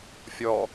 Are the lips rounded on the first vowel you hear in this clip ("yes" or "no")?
yes